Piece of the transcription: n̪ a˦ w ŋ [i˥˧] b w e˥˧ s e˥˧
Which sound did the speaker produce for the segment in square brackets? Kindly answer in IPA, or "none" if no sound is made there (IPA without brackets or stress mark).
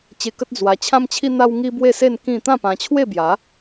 i˦